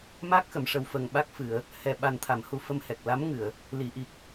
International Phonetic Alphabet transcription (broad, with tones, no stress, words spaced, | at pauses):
ma˦˥k̚xə˨˩˨mʂə˨˩wfə˨˩ŋ ɓa˦˥k̚fɨ˨˩˨ə̯ | hɛ˨˩ ɓa˨˩nt̪ʰa˨˩˨m hu˨˩ fə˧mhɛ˨˩k̚ la˧˥mŋɨ˨˩˨ə̯ | li˨˩˨ʔi˨˩k̚